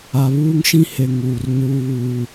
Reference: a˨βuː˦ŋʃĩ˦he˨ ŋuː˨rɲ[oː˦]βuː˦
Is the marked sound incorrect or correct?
incorrect